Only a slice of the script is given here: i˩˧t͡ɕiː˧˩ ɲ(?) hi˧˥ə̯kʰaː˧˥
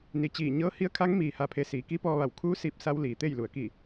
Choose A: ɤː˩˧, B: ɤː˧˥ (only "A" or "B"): B